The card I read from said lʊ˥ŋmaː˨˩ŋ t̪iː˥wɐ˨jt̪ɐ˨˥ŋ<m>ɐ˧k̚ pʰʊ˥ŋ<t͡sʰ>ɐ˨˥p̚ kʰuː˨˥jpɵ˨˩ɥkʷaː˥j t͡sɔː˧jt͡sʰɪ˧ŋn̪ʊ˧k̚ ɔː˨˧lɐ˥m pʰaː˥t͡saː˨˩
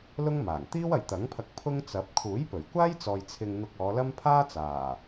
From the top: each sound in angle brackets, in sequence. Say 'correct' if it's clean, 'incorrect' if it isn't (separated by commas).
incorrect, incorrect